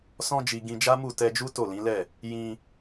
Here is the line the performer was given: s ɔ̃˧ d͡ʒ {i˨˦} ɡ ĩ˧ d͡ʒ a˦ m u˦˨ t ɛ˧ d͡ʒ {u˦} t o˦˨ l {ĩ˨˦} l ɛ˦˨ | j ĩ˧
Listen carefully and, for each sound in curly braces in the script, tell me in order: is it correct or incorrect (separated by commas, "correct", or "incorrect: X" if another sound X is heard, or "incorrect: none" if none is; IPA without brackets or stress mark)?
incorrect: i˨, correct, correct